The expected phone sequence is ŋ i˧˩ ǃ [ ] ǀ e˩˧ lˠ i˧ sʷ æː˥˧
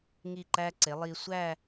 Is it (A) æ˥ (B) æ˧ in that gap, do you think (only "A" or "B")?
B